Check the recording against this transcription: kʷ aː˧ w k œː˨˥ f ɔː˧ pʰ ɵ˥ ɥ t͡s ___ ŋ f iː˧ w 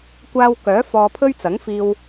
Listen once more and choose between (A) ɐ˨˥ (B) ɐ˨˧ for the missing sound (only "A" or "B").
A